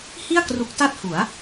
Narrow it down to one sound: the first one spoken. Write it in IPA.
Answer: h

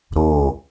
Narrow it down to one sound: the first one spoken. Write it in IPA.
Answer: ɾ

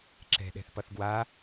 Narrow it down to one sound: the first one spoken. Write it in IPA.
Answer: ǁ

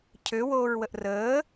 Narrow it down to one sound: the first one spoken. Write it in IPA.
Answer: cʰ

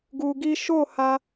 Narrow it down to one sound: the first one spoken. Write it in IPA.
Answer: ɡ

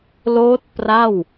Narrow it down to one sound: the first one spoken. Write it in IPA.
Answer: l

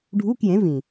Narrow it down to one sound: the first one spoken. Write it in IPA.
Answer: ɖʱ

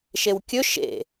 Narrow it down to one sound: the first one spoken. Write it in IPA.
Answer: ʃ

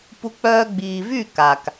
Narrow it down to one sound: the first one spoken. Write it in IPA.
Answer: p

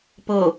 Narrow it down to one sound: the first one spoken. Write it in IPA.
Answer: p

